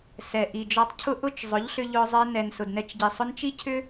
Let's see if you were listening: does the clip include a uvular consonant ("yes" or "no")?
no